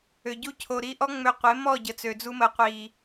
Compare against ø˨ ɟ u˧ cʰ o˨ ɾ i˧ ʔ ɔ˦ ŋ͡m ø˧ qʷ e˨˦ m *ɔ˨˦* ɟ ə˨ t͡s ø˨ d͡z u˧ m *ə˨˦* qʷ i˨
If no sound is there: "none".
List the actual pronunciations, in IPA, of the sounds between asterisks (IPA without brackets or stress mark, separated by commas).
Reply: ɔ˦˨, ə˨˦